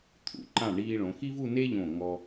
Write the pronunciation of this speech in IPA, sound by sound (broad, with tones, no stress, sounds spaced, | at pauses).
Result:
t̪ʰ ṵ˩˧ ǃ ã˧˩ ɳ iː˧ ɭ õ˩˧ x i˥ v u˥˧ n e˥ ʎ õ˧˩ ŋ ɔ˧